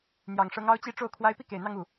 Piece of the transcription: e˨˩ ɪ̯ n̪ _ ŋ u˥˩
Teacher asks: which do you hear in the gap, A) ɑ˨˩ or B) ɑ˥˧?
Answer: B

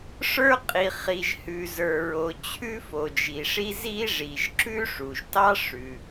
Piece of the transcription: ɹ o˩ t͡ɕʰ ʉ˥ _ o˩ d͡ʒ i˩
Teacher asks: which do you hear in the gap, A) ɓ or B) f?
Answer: B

